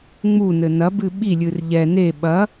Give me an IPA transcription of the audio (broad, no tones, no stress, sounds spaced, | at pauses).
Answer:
ŋ͡m u n ɘ n ɐ b ɨ ɓ i lʲ ɨ r ʎ ɛ n e ɓ ɐ